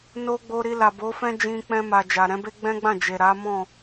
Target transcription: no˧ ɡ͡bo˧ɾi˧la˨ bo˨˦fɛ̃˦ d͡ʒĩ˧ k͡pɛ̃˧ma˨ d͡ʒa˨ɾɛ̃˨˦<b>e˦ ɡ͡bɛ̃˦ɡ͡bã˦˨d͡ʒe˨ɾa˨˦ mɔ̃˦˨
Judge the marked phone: correct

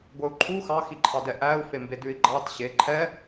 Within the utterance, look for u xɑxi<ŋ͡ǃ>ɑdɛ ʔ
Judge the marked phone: incorrect: ǃʰ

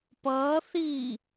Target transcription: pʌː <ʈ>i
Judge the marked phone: incorrect: θ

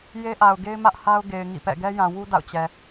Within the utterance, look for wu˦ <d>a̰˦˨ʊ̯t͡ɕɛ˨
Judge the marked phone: correct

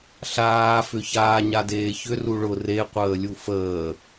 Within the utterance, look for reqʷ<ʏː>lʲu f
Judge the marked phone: incorrect: əː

